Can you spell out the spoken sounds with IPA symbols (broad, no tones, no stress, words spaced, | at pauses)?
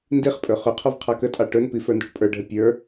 ndiχpʼɵ χɵqʰɔv qʰɑkətʼɑ ʈɵnpi fə˞ndɔʈpʼə˞ɖʱə pʲə˞